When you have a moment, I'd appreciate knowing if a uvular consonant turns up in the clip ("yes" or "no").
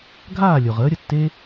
yes